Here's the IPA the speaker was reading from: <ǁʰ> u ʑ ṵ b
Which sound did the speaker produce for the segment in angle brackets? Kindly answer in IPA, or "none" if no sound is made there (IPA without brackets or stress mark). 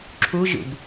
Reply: ǁʰ